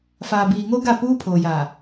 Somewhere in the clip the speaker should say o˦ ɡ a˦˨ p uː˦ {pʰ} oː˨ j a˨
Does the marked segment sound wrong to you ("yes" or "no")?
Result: no